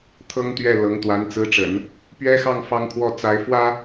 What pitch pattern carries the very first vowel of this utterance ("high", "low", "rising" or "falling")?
high